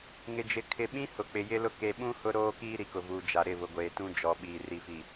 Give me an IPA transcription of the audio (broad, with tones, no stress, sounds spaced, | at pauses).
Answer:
ŋ ɪ˨ d͡ʒ ɪ˨ kʰ ɪ˨ ɓ ĩ˦ h ʊ˨ k͡p ɪ˨ j ɪ˦ l ʊ˦ k e˨ ɓ ũ˦ h ʊ˦ ɾ oː˦ k iː˦ ɾ i˨ k ʊ˨ v uː˨ d͡ʒ a˨ ɾ ɪ˦˨ β ʊ˨ ɡʷ eː˨ t ũ˦ d͡ʒ ɔ˨ ɓ iː˨ r i˨ f i˨